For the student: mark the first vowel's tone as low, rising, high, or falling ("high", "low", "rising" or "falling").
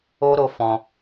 high